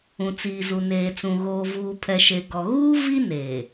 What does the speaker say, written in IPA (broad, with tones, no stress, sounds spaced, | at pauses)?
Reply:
ũ˨ t͡s iː˨ z u˨ n eː˨ t͡s ũ˨ ɣ oː˨ v uː˨ pʰ ɛ˨ ʃ e˨ ɡ ɔ˨ ɣ uː˦ v i˦ n eː˨